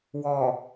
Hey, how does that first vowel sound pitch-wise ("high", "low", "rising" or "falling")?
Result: low